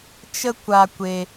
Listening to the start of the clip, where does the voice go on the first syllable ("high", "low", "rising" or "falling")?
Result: high